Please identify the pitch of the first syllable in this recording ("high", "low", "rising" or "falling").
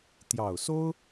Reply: low